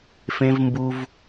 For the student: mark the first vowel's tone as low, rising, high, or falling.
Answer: high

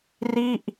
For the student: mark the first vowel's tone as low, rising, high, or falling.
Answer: falling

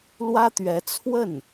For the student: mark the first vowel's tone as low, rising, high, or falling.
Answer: high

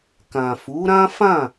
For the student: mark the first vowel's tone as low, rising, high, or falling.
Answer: low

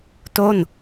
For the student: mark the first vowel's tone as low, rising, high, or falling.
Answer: falling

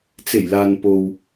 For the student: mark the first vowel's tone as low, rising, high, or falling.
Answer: low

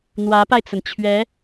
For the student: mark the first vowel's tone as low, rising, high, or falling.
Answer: rising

